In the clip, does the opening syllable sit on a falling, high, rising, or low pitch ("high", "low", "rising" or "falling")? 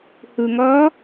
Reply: low